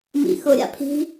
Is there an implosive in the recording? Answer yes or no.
no